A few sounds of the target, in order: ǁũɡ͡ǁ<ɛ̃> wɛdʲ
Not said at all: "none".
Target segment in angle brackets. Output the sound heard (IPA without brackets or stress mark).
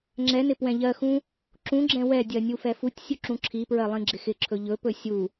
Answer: ɛ̃